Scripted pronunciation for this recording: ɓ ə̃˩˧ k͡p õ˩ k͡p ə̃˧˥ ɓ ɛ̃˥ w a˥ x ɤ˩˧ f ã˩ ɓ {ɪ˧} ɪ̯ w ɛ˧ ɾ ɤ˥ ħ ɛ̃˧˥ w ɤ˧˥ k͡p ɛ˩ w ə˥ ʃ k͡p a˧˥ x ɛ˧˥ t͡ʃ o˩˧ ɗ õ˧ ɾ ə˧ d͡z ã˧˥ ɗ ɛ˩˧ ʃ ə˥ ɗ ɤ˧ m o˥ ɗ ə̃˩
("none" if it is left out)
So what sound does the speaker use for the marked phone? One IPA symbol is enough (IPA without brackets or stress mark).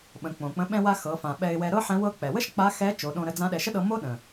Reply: ɛ˧